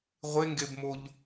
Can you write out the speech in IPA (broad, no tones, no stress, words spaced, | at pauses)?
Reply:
ʁʷeŋɡebmoʎ